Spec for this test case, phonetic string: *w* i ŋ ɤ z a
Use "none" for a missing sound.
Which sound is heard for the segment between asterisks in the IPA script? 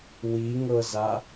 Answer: w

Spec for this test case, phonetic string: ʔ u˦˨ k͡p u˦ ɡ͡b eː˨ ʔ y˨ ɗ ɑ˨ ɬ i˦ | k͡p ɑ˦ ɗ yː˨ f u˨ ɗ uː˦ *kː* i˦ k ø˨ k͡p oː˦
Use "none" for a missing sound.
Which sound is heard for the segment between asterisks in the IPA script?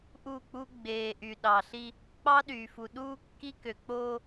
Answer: kː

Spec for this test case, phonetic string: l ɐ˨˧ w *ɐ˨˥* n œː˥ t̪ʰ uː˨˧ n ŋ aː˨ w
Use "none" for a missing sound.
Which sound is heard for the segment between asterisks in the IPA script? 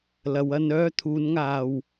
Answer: ɐ˧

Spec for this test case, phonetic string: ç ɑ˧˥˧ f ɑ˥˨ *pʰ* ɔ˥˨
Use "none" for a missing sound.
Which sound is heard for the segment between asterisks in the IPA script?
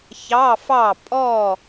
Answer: pʼ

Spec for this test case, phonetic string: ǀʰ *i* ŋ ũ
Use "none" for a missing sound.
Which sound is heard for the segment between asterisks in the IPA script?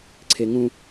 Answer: e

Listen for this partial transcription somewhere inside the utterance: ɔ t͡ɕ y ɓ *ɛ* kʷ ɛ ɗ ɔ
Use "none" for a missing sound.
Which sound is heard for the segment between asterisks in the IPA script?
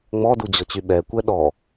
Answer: ɛ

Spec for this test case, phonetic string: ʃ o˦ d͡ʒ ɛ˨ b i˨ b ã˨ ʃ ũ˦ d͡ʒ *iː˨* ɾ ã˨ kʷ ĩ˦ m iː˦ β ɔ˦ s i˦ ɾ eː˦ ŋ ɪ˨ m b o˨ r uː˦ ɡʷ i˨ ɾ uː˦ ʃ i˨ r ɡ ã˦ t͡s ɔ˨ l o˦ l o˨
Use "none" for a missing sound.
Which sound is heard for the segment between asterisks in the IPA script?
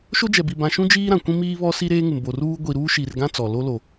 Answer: iː˦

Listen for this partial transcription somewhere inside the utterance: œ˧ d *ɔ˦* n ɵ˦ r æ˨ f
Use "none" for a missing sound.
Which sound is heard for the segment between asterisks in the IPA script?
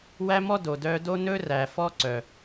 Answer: o˦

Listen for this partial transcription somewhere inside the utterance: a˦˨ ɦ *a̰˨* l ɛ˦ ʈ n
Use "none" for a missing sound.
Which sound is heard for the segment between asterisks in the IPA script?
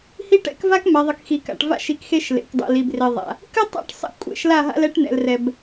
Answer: a̰˦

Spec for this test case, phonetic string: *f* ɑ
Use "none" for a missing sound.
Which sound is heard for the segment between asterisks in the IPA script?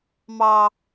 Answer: m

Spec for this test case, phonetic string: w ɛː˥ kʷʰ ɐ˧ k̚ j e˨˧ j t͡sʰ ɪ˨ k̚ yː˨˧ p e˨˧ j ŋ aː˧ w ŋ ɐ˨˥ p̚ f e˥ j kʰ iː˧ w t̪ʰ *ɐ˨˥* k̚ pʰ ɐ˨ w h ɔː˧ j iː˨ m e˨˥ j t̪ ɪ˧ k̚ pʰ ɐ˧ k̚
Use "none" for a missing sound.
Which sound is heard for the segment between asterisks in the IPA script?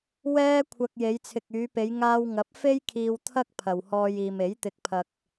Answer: ɐ˥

